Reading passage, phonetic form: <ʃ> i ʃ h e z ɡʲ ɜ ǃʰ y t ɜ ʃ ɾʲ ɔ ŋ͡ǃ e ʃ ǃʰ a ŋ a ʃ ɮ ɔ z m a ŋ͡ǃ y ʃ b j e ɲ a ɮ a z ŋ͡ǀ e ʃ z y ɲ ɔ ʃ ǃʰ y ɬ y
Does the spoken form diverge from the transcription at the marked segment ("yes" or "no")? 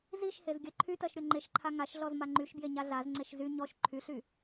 yes